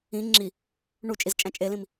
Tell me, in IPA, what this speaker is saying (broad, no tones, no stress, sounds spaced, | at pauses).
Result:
ĩ ŋ͡ǁ i | ɳ u t͡ʃʼ i z t͡ʃʼ æ̃ t͡ʃʼ e l ĩ m